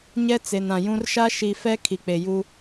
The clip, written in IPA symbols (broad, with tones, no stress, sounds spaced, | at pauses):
ɲ ɛ˦ t͡s e˨ n ã˨ j ũ˦ r ʃ a˦ ʃ i˨ f ɛ˦ kʰ i˨ k͡p e˨ j u˦